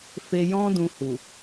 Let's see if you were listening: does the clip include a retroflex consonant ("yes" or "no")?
no